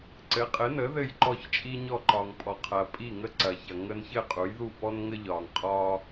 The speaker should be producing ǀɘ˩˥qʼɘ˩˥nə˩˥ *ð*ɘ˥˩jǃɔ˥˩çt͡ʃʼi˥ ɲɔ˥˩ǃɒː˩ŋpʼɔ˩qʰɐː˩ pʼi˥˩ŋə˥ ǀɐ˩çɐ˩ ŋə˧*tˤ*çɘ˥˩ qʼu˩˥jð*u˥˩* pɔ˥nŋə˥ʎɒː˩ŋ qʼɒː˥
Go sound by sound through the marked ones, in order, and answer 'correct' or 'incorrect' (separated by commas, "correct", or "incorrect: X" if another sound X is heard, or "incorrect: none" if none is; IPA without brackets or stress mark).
correct, incorrect: n, correct